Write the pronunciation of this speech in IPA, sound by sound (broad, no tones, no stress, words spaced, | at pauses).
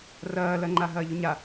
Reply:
rɐːlɐŋ͡ǃa ɦɐːʎʊɲa